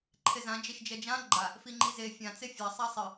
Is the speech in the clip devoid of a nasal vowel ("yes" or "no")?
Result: no